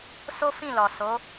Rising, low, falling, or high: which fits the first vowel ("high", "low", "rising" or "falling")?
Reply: high